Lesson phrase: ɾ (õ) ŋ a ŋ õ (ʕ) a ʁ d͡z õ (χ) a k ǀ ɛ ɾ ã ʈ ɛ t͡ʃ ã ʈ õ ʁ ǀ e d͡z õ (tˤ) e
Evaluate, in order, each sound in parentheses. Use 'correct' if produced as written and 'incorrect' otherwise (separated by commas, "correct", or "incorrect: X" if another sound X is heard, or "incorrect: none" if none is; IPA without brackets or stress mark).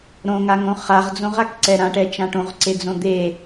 correct, incorrect: χ, incorrect: ʁ, incorrect: d̪